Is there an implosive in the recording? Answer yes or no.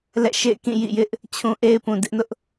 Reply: no